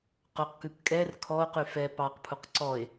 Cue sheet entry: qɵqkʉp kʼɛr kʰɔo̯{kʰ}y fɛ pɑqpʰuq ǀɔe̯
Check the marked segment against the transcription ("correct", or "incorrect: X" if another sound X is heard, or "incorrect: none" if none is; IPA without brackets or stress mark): incorrect: q